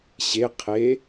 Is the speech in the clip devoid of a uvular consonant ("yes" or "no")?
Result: no